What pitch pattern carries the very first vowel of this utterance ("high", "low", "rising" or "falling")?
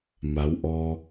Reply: rising